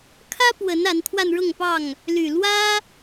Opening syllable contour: high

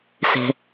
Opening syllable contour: low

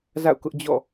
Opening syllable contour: falling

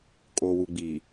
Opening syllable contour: low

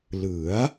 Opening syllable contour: rising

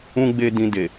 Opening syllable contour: high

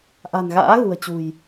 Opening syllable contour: low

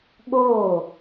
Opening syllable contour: falling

